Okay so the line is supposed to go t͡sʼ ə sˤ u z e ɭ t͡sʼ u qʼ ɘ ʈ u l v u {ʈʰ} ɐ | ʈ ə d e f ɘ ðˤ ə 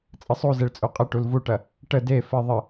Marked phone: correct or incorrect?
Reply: incorrect